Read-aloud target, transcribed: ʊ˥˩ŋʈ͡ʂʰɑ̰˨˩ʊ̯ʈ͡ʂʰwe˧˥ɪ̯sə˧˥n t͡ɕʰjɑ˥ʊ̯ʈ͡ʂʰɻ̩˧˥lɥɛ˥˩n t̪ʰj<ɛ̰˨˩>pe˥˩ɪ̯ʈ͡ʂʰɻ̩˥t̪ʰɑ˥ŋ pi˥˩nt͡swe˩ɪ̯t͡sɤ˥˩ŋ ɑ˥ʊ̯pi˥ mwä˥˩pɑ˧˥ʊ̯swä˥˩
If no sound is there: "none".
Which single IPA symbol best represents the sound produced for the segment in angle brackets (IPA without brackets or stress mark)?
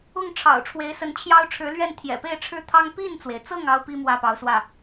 ɛ̰˨˩